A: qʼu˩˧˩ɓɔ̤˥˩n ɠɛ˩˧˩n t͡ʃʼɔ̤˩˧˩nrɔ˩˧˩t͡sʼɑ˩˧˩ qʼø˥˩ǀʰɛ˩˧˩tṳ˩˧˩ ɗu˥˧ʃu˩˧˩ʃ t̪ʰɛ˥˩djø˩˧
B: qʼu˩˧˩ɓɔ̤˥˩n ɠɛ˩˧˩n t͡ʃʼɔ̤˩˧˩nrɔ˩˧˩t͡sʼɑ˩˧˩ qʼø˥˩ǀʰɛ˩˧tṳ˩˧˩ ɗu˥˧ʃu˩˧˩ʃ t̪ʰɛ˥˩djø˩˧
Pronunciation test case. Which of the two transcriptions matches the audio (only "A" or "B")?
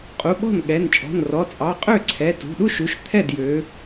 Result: A